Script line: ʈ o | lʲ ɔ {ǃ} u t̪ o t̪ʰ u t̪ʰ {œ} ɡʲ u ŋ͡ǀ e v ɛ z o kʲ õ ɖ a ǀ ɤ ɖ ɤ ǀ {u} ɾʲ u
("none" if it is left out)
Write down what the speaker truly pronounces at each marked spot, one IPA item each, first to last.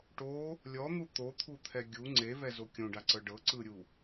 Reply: n̪, ɛ, ɯ

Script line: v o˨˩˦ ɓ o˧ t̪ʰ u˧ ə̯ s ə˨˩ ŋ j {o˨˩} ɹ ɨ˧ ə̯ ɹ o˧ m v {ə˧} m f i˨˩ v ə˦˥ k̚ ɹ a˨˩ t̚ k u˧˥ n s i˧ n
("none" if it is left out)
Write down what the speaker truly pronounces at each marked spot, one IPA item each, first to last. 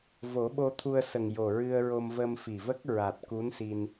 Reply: o˨˩, ə˧

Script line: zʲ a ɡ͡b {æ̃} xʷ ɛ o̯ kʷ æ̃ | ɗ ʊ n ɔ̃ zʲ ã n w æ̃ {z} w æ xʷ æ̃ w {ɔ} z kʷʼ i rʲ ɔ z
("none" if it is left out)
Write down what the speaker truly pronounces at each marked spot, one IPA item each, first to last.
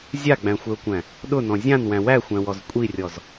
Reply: æ̃, none, ɔ

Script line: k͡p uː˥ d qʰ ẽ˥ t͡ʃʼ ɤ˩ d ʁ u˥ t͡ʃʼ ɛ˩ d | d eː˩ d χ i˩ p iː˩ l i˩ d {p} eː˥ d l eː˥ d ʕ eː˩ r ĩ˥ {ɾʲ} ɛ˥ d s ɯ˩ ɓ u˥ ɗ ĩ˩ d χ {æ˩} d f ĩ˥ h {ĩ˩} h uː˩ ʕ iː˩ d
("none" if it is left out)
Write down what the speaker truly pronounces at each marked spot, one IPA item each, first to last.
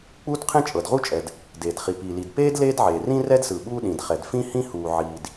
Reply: p, r, ɛ˩, ĩ˥

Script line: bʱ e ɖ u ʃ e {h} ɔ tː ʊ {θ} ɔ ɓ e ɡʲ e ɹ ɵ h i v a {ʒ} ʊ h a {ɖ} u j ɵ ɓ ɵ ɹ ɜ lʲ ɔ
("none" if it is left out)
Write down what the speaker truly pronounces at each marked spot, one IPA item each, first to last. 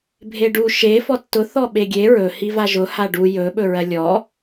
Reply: f, θ, ʒ, ɖ

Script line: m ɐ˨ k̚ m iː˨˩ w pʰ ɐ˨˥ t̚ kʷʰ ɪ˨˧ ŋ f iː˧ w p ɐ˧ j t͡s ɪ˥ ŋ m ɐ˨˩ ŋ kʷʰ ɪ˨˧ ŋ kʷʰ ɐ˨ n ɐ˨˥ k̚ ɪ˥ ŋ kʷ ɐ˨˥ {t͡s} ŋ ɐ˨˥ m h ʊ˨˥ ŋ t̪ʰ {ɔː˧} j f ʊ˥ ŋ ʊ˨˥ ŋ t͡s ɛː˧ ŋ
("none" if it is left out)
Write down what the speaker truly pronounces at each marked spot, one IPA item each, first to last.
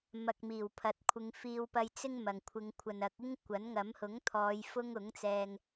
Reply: n, ɔː˨˧

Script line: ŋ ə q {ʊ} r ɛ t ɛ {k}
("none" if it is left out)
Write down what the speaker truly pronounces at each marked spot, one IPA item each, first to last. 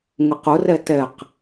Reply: ʊ, q

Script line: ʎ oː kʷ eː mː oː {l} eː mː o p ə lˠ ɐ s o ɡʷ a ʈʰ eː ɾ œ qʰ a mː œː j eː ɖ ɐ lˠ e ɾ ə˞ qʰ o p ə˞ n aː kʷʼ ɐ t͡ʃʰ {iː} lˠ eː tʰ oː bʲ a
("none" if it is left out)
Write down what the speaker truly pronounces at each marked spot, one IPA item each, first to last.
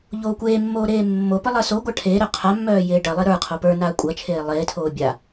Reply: ɾ, eː

